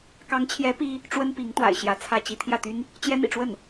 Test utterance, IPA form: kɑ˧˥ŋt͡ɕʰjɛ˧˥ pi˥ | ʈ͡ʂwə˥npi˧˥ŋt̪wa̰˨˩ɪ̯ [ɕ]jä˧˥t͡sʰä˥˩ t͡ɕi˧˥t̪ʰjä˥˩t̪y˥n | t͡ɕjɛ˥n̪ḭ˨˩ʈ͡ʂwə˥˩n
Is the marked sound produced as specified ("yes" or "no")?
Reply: yes